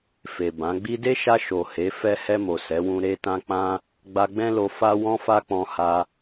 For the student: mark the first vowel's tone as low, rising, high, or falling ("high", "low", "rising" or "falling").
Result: low